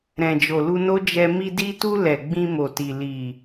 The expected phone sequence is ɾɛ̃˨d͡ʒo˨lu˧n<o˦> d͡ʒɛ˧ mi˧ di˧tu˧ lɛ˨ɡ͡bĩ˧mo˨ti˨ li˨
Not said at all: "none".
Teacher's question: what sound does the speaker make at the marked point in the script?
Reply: o˦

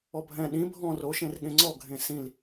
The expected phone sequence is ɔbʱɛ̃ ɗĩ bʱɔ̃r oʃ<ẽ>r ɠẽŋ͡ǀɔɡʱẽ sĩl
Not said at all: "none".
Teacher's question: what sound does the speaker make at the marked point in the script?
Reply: ẽ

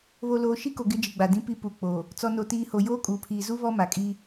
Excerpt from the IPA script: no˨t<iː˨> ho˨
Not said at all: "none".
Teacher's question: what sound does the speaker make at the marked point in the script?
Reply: iː˨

